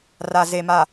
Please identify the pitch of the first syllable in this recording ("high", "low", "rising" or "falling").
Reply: low